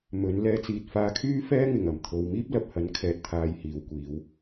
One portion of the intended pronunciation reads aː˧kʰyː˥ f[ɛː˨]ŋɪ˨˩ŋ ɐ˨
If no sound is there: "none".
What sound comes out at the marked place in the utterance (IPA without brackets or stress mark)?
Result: ɛː˥